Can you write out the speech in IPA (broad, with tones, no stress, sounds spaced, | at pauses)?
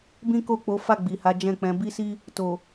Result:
b ĩ˦ k o˦˨ k͡p o˨˦ f a˦˨ ɡ͡b i˨ h a˨˦ d͡ʒ ɛ̃˦˨ k͡p ɛ̃˨˦ b i˦ s i˦ | t o˨